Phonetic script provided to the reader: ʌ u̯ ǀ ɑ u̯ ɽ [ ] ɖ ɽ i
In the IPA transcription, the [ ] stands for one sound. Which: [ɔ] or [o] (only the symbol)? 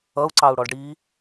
ɔ